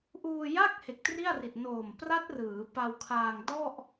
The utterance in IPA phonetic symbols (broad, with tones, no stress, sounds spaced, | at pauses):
ʔ uː˧ j a˥˩ k̚ h e˨˩ k̚ t r i˥˩ a̯ r i˨˩ t̚ n oː˨˩ m p r a˦˥ t̚ r ɯː˩˦ p a˧ w kʰ aː˧ ŋ d ɔ˥˩ ʔ